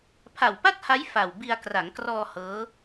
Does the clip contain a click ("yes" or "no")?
no